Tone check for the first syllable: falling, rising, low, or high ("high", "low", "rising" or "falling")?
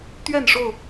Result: falling